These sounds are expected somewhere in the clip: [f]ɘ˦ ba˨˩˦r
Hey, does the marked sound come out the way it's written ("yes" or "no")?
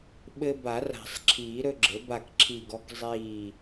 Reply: no